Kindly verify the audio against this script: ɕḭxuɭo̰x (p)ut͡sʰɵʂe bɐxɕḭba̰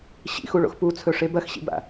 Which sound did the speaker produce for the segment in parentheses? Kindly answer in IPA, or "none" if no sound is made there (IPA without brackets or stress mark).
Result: p